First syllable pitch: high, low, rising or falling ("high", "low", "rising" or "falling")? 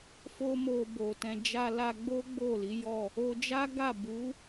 high